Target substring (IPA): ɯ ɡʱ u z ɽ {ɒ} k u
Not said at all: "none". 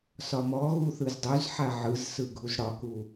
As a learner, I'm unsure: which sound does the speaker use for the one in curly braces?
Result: ɒ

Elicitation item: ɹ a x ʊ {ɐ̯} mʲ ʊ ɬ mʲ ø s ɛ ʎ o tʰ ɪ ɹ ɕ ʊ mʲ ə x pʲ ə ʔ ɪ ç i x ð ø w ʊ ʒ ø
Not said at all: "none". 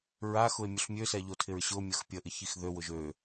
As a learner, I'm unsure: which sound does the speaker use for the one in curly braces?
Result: e̯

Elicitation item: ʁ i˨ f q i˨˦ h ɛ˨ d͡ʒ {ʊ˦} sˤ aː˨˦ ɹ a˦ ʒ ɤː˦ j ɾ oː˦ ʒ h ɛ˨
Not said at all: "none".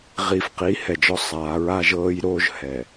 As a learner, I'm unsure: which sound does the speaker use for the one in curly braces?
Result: ɔ˦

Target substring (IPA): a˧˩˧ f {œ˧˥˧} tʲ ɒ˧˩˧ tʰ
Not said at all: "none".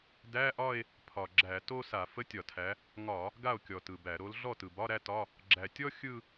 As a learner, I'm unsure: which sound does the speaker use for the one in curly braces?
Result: ə˧˥˧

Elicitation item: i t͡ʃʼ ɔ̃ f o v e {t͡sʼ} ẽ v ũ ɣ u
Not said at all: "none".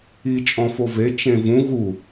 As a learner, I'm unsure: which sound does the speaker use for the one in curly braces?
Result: t͡ʃ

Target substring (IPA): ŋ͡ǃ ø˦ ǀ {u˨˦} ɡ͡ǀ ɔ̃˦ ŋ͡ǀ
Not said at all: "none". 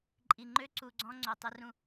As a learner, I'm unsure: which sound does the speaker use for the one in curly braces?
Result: u˨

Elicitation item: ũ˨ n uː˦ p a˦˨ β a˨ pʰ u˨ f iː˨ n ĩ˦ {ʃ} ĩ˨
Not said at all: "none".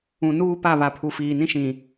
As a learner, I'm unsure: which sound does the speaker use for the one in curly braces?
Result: ʃ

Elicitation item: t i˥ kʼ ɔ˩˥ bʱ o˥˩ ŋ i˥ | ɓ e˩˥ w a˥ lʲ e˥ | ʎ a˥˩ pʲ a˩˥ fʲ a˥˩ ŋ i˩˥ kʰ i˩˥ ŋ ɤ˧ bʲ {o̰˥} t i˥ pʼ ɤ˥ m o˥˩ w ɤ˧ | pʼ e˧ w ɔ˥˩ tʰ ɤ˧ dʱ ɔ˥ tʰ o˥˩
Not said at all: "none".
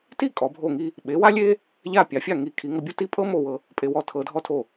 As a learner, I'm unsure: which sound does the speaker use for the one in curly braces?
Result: o˥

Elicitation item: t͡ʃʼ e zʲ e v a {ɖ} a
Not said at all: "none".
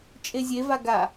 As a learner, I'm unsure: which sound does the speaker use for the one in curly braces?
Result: ɡ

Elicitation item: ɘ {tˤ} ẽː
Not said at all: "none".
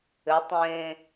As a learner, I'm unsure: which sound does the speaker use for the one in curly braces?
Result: tˤ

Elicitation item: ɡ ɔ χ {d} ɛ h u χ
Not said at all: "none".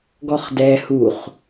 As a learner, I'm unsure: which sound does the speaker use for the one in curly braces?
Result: d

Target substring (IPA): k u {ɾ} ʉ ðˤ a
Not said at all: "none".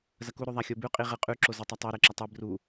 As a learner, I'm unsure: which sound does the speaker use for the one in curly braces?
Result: ɾ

